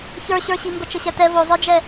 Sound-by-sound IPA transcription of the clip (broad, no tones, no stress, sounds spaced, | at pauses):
ç ə˞ ɕ ə˞ ɕ i m b ə t͡ʃ ə ɕ ɛ t ɛ v o zˤ ə˞ d͡ʒ ɛ